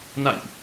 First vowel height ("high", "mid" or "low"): low